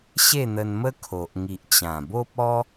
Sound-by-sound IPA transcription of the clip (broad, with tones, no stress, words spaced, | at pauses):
ɕe˥˧n̪ə˧nmə˦ kʰo˨ʔŋi˨ʔt͡ɕã˨˩ bo˦p̚ɔ˦